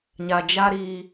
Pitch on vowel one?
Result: low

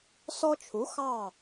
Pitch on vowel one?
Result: high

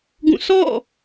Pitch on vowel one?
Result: falling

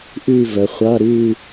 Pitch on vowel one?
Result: falling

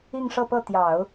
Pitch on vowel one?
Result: falling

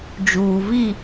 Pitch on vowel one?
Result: low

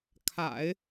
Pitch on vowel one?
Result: low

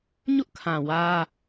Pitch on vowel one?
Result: high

